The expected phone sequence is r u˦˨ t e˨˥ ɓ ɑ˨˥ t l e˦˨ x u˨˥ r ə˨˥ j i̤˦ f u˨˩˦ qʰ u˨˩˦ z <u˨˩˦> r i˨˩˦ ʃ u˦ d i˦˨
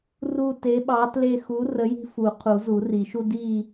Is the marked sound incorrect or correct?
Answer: correct